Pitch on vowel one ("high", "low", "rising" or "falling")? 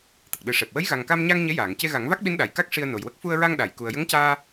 low